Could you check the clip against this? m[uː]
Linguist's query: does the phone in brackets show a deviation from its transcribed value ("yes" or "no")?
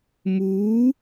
no